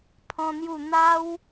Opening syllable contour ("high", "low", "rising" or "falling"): high